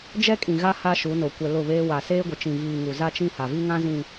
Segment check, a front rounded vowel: absent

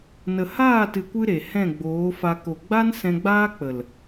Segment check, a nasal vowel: present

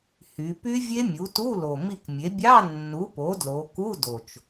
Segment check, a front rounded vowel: present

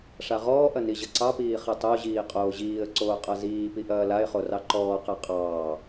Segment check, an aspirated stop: absent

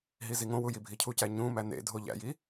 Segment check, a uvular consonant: absent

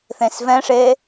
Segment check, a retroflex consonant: present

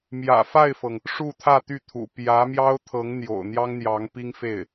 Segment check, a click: absent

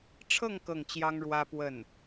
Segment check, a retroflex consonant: present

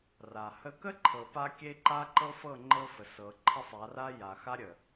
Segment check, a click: present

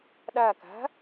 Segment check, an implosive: present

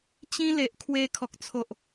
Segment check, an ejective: absent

